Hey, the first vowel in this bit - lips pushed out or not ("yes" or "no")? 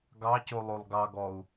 no